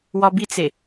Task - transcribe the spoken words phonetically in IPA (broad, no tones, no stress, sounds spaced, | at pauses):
w ɒ b i t͡s e